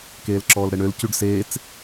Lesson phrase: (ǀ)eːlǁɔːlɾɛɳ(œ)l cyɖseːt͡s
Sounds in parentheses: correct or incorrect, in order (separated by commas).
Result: incorrect, incorrect